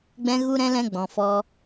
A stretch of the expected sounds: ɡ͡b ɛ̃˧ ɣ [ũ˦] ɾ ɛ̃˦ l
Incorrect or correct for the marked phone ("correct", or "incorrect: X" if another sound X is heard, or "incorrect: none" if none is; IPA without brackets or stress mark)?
incorrect: u˦